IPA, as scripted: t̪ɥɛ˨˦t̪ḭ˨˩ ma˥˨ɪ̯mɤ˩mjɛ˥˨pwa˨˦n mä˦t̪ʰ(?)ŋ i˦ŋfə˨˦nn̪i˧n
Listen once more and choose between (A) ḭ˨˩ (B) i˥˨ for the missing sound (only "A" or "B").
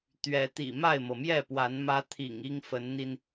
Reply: A